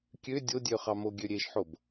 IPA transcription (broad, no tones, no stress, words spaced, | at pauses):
kʲø dʲodʲø χɑmoɡʲø ɾʲeʃħob